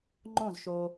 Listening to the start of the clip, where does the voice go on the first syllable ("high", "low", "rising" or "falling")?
falling